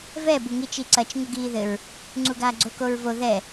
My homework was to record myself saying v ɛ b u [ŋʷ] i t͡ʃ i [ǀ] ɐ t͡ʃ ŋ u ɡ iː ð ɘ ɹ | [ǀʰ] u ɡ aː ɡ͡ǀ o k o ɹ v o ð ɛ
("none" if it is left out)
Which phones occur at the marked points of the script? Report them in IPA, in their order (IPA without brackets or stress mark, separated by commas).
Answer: ŋ, ǀ, ŋ͡ǀ